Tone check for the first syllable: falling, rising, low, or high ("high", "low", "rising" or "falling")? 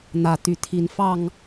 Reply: rising